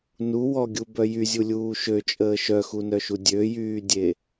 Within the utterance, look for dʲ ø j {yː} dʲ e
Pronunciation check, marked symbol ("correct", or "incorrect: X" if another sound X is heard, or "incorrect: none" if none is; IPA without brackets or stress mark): correct